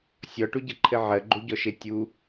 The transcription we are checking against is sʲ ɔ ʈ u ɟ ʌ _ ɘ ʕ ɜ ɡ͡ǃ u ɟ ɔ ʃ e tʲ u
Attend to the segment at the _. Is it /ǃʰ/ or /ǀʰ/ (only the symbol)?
ǃʰ